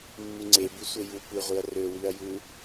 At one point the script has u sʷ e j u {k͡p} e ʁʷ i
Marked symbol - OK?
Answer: no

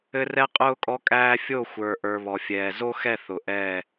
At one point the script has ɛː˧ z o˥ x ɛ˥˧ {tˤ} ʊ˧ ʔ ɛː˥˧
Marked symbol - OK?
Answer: no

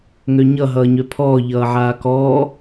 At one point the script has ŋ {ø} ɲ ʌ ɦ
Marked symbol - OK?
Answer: yes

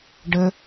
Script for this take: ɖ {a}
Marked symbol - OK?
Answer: no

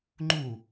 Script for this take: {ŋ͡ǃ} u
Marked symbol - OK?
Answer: yes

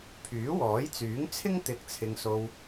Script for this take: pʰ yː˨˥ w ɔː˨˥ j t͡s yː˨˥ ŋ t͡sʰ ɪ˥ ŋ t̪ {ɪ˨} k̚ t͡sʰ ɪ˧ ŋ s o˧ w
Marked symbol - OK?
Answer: yes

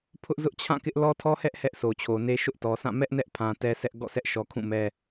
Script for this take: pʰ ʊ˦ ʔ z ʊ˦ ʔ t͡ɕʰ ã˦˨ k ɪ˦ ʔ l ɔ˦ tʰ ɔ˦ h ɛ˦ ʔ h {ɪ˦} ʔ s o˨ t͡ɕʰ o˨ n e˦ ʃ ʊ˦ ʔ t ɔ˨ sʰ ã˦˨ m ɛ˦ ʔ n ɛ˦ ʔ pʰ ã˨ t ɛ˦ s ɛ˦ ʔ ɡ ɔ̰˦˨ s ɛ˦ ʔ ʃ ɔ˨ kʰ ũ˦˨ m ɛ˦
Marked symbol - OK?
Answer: no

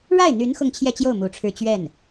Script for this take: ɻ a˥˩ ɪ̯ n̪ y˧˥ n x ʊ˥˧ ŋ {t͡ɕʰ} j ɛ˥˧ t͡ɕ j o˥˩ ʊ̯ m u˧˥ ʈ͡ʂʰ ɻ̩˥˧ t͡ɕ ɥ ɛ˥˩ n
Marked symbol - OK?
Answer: yes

